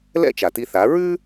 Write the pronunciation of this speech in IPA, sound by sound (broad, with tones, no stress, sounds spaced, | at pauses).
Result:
l ɛ̰˥ t͡ʃ a˩ t i˧ θ a˩˥ ɹ ʉ˥